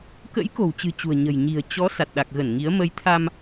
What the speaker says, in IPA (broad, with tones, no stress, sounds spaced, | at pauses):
k ə̰˧˥ j k o̤˨˩ w t͡ɕ ɨ̤˨˩ t͡ɕ ṳ˨˩ ə̯ ɲ ə̤˨˩ j ɲ i̤˨˩ ə̯ t͡ɕ ɔ˨˦ s a˨˩ t̚ ɗ a˨˩ k̚ ɣ ə˧˩ n ŋ i˨˦ ə̯ m ə˨˦ j t̪ʰ a˧ m